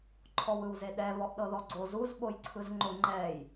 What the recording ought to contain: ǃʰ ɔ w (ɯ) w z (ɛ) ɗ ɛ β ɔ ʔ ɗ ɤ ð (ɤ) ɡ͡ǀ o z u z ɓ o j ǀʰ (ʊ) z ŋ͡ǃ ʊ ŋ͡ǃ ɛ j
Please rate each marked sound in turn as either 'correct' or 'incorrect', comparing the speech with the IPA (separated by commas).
correct, incorrect, incorrect, incorrect